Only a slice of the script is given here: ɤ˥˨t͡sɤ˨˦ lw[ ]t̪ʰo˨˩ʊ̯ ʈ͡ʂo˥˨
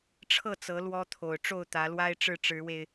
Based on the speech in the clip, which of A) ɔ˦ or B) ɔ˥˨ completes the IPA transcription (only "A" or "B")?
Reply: A